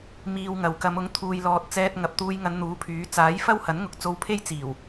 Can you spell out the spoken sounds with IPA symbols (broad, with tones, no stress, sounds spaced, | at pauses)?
m iː˧ w ŋ ɐ˨ w k ɐ˨˧ m ʊ˨˥ ŋ t̪ʰ uː˨ j l ɔː˨ t̚ t͡s ɛː˧ t̚ ŋ ɐ˨ p̚ t̪ uː˧ j ŋ ɐ˨˧ n n̪ uː˨˥ pʰ yː˨˥ t͡s aː˨˥ j f ɐ˥ w h ɐ˨˥ n ŋ ʊ˨˥ k̚ t͡s o˧ w pʰ e˥ j t͡s iː˨˩ w